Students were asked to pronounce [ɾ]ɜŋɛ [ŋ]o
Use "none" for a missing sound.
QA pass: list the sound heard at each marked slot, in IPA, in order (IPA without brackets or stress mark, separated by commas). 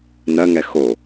n, x